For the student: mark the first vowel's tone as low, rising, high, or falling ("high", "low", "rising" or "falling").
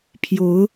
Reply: rising